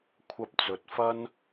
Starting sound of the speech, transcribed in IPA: kʷʰ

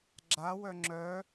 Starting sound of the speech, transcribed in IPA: ɡ͡ǁ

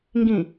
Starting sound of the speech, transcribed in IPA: ŋ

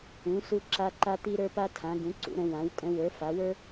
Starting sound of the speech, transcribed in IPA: ũ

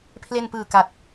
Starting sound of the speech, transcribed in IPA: pʰ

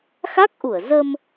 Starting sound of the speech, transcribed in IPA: x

